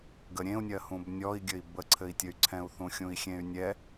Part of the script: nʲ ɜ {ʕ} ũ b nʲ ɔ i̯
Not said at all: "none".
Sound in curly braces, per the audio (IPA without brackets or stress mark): h